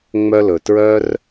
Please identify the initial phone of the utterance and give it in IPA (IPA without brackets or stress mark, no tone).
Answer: ŋ͡m